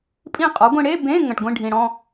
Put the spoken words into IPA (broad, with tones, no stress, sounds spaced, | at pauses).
pʼ ĩ˥˧ qʼ ɔ˩˥ ɡʷ ĩ˧ ɽ e˧˥˧ b ẽ˧˥˧ ŋ ə̃˩ ʈ ɡʷ ĩ˥˧ ɖʱ ĩ˩ ɽ ɔ̃˥˧